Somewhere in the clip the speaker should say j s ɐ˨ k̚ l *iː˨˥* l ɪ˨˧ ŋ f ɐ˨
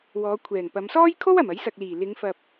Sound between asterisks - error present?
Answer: yes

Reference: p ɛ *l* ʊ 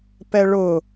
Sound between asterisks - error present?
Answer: yes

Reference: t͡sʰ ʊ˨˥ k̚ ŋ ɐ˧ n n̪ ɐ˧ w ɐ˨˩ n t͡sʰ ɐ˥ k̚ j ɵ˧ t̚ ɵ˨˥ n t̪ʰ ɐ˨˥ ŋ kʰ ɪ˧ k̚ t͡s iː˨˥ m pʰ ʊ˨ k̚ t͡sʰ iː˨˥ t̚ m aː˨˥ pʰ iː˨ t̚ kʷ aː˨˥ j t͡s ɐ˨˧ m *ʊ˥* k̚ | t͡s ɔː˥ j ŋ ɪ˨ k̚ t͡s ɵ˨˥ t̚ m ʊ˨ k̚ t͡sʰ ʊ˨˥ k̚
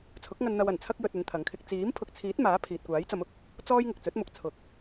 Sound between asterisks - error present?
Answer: yes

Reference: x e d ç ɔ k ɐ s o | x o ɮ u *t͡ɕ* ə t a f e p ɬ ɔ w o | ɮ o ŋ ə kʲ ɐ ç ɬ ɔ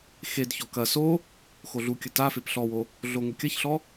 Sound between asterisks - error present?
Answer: yes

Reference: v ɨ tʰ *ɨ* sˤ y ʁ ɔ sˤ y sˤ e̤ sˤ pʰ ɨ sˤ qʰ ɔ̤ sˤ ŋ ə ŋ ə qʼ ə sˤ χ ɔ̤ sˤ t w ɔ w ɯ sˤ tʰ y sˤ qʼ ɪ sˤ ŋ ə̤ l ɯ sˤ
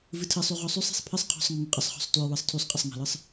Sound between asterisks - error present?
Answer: no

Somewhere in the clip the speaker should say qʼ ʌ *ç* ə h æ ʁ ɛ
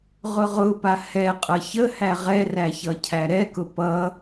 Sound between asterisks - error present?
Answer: no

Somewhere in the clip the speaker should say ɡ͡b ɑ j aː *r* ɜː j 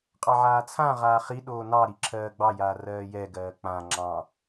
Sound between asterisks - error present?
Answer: no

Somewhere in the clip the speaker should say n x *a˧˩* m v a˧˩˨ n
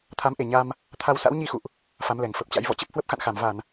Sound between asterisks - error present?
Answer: no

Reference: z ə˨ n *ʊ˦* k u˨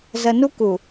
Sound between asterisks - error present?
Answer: yes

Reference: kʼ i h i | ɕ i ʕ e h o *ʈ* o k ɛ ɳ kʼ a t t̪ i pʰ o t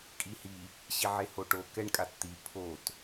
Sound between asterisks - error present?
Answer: no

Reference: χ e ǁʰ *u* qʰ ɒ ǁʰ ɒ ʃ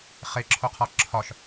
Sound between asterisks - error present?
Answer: yes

